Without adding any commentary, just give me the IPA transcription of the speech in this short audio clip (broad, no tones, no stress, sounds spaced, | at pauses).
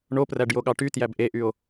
ɳ o p r æ ɖ j o ɠ ɑ ʈ y t j æ b ʔ e ʔ y o̯